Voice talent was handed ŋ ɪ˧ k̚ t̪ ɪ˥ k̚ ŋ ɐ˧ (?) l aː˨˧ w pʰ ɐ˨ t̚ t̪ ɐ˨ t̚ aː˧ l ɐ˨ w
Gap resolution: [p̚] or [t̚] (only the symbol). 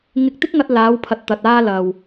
t̚